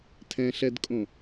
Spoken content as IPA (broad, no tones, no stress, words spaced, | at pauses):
tʰɛ̃ɬɛdkʼõ